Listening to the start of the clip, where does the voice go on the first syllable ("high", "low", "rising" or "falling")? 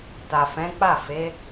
low